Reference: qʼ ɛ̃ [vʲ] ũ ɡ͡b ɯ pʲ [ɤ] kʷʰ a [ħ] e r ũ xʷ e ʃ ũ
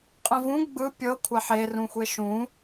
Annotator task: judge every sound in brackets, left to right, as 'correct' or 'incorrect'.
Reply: incorrect, correct, correct

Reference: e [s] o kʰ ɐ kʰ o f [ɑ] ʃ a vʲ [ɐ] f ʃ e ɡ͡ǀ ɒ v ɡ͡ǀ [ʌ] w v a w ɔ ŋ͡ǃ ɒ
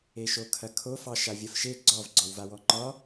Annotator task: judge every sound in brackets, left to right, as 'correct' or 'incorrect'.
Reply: incorrect, correct, correct, incorrect

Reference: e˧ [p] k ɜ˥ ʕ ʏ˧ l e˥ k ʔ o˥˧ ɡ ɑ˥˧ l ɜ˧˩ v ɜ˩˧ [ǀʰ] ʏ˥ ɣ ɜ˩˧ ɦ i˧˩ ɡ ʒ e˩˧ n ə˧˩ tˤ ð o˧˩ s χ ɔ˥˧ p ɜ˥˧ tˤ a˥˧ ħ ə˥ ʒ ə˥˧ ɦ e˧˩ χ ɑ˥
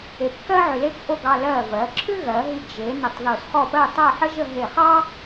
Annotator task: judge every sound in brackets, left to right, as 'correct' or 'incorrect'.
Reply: correct, incorrect

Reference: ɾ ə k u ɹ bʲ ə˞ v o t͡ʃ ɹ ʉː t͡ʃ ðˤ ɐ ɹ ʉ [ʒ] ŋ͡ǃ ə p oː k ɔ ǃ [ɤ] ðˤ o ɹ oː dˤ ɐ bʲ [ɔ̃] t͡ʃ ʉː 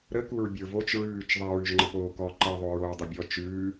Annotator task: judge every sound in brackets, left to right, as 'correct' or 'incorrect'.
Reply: correct, correct, incorrect

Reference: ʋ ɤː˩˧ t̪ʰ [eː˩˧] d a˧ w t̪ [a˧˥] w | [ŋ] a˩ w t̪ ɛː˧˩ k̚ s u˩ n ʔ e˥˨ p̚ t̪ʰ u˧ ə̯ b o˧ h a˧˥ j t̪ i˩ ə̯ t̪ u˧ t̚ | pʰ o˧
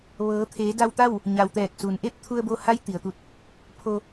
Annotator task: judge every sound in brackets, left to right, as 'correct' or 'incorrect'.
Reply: correct, incorrect, incorrect

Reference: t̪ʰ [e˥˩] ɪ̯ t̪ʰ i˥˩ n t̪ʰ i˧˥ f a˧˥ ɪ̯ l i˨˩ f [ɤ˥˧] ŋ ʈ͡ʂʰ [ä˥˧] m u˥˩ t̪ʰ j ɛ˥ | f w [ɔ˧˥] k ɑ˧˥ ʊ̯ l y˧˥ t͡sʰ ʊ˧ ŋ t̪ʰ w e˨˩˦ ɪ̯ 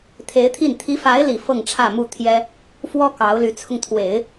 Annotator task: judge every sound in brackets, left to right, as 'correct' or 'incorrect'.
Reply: incorrect, correct, correct, incorrect

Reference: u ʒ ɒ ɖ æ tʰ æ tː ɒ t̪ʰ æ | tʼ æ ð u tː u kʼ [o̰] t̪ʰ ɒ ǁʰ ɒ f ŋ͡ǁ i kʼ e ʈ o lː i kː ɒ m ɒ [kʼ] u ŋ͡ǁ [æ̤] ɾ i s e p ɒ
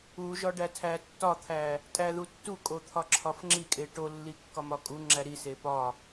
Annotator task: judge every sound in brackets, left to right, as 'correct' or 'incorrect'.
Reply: incorrect, correct, incorrect

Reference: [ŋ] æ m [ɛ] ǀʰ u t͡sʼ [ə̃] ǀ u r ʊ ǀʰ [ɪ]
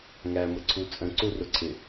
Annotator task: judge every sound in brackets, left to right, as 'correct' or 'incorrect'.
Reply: correct, incorrect, correct, correct

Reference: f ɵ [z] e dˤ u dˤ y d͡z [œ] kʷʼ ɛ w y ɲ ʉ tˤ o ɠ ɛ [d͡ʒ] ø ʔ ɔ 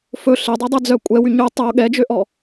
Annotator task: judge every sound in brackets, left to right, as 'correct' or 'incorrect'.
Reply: incorrect, correct, correct

